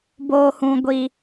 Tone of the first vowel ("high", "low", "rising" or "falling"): low